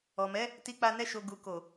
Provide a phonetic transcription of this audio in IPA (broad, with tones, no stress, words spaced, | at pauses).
ɔ˨mɛ˨˦ | ti˧k͡pa˧ nɛ˧ʃo˨ ɡu˨ko˨